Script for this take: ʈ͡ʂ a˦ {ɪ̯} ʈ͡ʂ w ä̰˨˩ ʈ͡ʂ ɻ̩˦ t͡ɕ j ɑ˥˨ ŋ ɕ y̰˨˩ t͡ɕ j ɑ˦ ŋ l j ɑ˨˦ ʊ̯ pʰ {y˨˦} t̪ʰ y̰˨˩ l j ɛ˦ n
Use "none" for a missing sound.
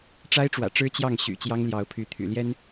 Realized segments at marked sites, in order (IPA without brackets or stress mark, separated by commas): ɪ̯, y˨˦